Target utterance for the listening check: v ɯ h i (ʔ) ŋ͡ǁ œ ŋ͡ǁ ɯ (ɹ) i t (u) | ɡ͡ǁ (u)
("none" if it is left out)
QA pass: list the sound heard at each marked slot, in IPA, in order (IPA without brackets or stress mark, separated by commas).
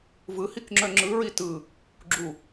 k, ɹ, ɯ, u